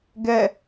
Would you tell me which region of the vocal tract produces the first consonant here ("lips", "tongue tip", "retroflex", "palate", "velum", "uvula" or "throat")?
velum